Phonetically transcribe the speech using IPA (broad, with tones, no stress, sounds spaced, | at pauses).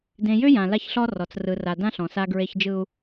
d ẽ˨ j ʏ˦ j ã˨ l a˦ ç ɬ ɔ˦ r ɔ˨ t͡s r ɯ˨ r a˨ d ã˦ ɬ ɔ̃˨ s a˦ ɡ ɹ e˦ ç d͡ʒ ɯ˦ u̯